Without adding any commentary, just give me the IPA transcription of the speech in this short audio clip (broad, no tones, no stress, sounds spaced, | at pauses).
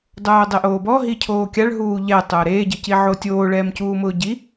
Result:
dˤ oː dˤ ɪ ʔ oː b ɔ ɦ i cʰ oː kʲ a ɭ ɦ uː ʎ ɛ tˤ ʊː ɾ eː ɟ ɪ c i ʕ o tʲ oː ɭ ɛː m c uː m ʊː ɟ i